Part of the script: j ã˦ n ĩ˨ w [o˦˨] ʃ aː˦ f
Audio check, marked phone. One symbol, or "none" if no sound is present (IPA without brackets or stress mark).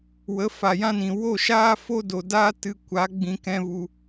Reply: o˦˨